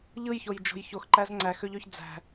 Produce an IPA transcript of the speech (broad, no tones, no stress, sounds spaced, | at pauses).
ʎ ɯ j ç o j d͡ʒ o̤ j ç o x ǃ æ z ŋ͡ǀ æ x ø ʎ ø ç d͡z æ̤